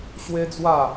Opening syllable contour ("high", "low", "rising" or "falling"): high